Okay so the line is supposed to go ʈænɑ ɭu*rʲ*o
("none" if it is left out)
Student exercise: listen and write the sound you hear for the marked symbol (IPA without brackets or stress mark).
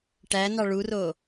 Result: r